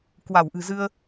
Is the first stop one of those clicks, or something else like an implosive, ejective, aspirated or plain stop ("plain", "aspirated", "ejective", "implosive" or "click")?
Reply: plain